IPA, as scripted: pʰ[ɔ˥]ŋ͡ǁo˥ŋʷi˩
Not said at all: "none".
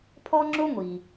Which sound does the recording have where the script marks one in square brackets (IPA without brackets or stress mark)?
ɔ˥